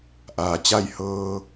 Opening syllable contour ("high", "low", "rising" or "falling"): low